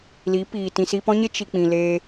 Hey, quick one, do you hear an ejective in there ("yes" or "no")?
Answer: no